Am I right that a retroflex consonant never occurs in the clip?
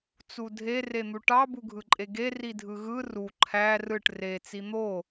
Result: no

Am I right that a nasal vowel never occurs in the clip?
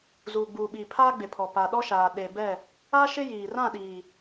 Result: no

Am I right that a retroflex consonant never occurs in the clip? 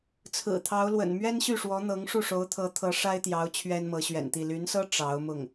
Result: no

